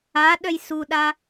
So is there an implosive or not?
yes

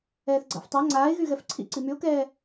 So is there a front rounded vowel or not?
yes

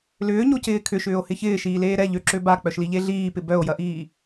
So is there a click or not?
yes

